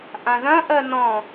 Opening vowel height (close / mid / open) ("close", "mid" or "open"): open